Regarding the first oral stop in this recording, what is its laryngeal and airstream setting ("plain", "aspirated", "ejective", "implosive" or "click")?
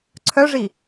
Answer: click